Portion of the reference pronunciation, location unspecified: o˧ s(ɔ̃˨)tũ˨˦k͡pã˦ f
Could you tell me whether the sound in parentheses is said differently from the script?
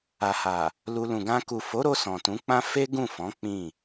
no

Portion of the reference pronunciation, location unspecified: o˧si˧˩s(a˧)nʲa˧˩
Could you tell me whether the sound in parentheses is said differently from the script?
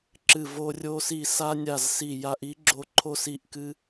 no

